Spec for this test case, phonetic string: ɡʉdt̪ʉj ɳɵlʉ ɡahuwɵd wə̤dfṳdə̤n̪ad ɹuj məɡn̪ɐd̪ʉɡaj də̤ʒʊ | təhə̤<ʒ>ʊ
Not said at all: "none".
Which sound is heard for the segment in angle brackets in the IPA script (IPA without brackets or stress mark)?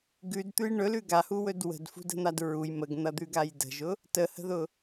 ð